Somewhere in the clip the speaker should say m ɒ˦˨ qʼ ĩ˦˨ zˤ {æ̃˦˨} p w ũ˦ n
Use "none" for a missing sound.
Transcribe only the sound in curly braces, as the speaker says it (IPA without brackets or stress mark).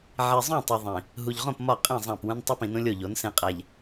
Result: æ̃˦˨